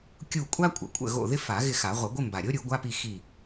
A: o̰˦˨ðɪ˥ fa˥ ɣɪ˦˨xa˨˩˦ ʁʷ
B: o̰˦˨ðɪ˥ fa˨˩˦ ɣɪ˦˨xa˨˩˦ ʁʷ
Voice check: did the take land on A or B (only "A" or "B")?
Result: B